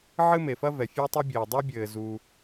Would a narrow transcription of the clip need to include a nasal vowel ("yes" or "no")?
no